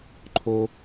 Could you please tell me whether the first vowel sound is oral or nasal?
oral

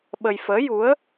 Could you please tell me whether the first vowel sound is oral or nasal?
oral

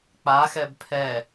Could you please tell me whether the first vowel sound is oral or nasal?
oral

